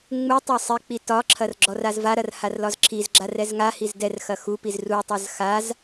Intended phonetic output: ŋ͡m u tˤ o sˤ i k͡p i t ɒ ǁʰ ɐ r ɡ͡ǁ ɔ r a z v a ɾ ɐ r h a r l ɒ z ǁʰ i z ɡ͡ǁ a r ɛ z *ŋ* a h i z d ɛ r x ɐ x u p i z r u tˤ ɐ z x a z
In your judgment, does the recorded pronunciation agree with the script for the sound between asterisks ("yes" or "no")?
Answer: yes